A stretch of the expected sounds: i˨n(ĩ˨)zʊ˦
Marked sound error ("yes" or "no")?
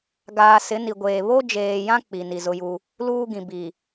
yes